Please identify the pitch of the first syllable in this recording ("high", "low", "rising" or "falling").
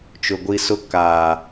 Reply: low